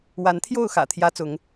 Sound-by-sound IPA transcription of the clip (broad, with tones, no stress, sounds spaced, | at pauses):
w a˨˦ n t̪ʰ j o˥˨ ʊ̯ x ä̰˨˩ t̪ʰ j ä˦ t͡s ʊ˨˦ ŋ